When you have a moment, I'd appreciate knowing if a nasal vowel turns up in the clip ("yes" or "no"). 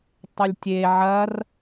no